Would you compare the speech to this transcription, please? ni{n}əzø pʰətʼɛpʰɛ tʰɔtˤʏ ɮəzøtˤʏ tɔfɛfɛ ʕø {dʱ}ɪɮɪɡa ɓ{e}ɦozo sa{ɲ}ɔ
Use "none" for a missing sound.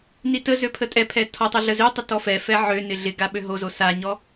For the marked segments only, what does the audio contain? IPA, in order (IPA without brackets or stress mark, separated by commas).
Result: t, n, ø, ɲ